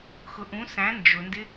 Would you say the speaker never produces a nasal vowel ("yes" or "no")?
no